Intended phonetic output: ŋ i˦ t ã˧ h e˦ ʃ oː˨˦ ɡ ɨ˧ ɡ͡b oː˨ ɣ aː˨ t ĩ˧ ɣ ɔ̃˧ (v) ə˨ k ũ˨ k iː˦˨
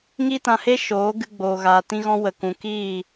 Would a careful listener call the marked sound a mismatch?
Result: yes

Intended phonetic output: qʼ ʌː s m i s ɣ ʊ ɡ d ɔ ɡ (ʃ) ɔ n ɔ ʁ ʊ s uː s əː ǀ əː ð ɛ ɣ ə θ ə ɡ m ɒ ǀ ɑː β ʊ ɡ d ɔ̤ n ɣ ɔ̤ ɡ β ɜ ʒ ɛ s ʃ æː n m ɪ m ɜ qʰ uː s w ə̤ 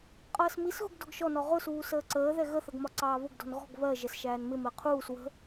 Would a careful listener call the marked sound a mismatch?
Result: no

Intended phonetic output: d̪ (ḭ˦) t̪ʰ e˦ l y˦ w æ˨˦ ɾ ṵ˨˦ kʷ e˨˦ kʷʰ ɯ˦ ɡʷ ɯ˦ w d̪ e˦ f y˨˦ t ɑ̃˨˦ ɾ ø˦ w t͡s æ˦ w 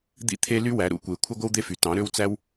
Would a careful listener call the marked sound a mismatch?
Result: no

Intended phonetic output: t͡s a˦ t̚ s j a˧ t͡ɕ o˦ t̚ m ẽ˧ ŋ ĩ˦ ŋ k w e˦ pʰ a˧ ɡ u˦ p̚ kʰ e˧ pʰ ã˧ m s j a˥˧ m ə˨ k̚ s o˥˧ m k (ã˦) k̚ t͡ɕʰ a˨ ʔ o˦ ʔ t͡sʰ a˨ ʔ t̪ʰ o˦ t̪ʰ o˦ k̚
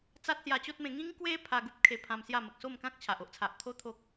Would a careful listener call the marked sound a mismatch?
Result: no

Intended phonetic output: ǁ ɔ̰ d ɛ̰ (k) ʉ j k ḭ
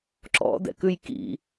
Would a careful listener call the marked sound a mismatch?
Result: no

